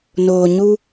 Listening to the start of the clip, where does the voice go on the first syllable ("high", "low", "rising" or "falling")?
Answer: low